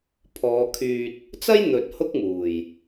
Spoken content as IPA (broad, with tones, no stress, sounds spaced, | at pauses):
pʰ ɔː˨˧ kʰ yː˧ t̚ | t͡s ɐ˥ j n̪ ɵ˨ t̚ h ʊ˥ k̚ m uː˨˩ j